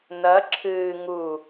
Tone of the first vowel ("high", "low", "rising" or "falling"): rising